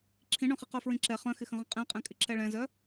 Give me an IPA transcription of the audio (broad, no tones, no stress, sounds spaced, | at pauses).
ǁʰ ĩ ɳ œ̃ χ i q œ f ɹ ĩ ǁ ɛ χ œ̃ x ɪ x ə̃ ʁ ə̃ qʼ ɛ̃ qʼ ɛ̃ kʼ ɪ ǁ ɛ ɭ ɛ̃ z œ